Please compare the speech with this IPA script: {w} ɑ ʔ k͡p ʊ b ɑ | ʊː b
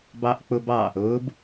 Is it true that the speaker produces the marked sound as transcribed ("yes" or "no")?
no